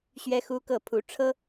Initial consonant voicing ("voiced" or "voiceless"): voiceless